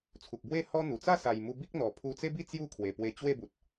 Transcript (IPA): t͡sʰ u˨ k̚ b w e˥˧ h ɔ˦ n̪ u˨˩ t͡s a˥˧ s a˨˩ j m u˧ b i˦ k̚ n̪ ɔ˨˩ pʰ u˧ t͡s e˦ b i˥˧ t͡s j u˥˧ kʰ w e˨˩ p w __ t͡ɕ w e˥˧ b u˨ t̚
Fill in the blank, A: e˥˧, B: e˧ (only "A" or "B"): B